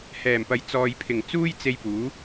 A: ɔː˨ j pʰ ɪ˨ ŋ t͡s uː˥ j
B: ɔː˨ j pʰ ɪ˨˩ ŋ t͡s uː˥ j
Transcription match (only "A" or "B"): B